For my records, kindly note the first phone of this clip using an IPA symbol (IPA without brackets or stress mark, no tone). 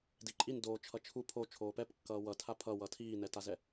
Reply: d